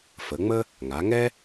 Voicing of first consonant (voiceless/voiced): voiceless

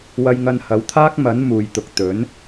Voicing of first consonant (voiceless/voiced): voiced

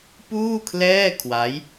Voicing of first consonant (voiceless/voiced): voiceless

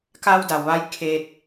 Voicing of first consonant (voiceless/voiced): voiceless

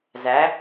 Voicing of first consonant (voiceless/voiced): voiced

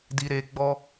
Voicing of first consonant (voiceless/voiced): voiced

